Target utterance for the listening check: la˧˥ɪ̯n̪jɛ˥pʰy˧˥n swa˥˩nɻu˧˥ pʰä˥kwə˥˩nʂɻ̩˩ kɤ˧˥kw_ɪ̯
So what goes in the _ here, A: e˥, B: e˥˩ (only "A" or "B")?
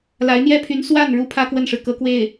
B